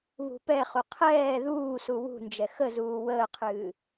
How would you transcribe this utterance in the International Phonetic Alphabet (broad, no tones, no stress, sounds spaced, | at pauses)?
β ṳ p ɛ χ u qʰ ɛː ð uː s u w ṳ n d͡ʒ ɛ x ə z uː w əː qʰ ɨː